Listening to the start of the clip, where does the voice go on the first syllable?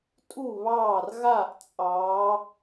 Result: falling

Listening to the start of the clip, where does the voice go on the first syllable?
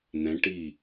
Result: rising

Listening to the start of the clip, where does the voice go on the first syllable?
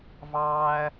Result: high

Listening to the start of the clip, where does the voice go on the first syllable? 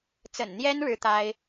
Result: low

